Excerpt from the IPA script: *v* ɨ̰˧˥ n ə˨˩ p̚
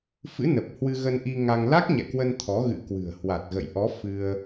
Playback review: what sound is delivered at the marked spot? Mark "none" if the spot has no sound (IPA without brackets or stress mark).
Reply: f